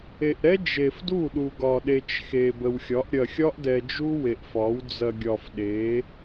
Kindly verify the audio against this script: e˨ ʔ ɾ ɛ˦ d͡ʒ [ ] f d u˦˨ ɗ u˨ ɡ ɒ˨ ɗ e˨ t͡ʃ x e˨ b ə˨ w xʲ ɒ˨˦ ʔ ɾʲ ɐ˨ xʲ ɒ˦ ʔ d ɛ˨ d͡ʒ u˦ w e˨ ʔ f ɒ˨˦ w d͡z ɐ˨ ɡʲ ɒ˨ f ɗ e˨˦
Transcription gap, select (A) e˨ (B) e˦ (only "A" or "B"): A